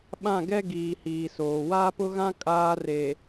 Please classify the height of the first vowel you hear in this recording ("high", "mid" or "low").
low